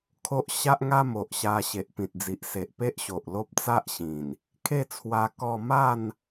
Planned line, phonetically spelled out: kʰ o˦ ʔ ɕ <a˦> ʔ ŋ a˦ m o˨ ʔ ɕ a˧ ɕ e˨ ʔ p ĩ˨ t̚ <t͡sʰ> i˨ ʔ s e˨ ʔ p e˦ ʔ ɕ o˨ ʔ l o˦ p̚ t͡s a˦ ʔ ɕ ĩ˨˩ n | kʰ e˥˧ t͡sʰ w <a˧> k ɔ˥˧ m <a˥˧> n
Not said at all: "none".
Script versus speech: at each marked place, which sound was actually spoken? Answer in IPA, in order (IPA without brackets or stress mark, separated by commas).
a˦, d͡z, a˧, a˥˧